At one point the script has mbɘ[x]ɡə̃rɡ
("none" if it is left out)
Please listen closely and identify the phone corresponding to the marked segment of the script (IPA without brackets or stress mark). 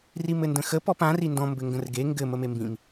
ŋ